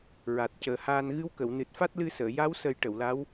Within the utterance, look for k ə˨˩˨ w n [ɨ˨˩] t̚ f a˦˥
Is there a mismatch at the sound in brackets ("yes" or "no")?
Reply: no